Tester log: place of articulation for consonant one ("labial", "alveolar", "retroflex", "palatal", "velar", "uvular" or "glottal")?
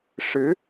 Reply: retroflex